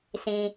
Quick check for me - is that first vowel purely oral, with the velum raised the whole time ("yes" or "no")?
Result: no